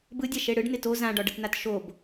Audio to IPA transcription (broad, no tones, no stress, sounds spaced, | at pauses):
b ɯ dʲ a ʃ e ɽ ɯ ɖ n ɪ t o z ã ɖ ɒ ɖ ə t n a t ʃ o b